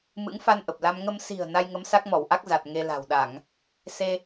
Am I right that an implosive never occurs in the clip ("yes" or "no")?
no